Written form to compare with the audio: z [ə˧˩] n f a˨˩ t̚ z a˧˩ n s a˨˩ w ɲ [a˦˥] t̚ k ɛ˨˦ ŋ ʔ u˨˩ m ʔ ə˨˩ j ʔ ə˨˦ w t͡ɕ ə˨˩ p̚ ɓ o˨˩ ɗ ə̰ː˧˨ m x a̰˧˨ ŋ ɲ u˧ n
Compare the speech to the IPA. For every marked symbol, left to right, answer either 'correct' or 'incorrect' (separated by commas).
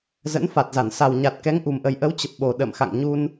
incorrect, incorrect